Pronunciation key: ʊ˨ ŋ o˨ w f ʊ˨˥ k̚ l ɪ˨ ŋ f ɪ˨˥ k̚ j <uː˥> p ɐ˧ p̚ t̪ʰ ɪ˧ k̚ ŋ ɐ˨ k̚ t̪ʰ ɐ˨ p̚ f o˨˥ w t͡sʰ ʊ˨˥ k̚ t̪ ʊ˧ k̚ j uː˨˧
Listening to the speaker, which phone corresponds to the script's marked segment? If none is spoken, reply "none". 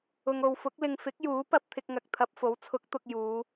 uː˨˥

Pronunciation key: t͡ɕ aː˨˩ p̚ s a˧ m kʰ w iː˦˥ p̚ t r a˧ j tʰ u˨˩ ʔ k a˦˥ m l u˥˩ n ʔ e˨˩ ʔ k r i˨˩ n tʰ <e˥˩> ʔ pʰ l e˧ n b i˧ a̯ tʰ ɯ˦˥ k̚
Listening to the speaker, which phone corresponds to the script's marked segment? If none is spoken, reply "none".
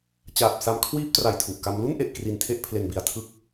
e˥˩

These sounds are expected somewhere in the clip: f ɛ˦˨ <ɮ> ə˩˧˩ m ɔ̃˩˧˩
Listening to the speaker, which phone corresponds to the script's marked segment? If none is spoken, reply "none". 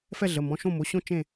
ɮ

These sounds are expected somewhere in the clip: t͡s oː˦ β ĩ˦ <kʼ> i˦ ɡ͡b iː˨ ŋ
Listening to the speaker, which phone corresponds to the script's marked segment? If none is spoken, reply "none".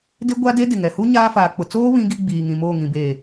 ɡ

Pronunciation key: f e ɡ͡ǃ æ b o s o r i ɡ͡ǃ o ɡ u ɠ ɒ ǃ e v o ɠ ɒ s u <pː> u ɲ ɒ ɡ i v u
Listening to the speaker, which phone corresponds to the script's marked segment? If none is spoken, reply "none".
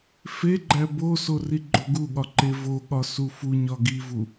f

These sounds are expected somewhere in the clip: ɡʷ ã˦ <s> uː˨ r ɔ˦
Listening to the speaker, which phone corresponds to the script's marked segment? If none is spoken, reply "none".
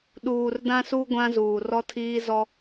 z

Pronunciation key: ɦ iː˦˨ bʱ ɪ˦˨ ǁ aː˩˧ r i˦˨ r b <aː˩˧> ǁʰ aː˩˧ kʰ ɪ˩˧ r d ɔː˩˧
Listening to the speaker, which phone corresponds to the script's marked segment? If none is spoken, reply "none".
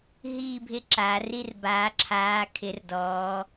aː˩˧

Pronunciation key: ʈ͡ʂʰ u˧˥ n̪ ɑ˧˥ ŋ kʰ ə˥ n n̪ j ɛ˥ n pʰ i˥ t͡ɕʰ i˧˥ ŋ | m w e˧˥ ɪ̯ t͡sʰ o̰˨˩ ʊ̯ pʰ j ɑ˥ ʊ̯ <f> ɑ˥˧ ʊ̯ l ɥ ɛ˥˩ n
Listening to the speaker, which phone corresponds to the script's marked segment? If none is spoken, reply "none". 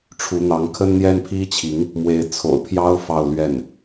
f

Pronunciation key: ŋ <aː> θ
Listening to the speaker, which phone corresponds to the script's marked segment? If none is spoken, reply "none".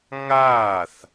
aː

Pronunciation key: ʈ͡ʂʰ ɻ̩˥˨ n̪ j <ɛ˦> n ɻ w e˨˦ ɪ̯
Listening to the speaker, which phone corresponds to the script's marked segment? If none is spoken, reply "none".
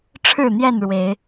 ɛ˥˨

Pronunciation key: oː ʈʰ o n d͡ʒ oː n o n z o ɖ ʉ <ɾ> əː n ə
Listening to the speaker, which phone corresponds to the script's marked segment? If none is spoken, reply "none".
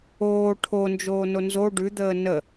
d̪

